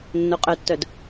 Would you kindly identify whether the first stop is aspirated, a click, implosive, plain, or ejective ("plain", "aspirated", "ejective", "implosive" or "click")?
ejective